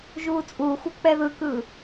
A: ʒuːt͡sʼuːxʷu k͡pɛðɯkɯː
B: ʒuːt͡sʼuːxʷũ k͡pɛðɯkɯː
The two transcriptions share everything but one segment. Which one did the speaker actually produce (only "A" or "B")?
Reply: A